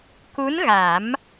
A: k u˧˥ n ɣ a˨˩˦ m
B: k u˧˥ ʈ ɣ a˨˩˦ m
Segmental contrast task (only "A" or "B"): A